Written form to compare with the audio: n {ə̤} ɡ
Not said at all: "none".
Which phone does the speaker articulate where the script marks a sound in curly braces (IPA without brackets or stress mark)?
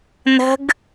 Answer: ə̤